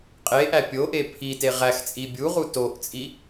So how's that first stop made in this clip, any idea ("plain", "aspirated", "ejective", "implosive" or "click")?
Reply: ejective